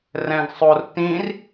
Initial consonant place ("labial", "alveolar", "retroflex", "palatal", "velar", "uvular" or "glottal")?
alveolar